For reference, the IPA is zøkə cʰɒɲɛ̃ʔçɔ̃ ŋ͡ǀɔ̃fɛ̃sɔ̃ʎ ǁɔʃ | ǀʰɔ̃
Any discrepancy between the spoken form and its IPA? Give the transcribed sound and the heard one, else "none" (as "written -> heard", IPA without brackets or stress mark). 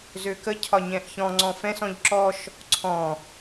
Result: none